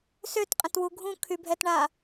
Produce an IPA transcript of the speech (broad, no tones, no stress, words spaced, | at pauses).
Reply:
søtqʼə̃twu ɡʱũkʰybʱɛtɳa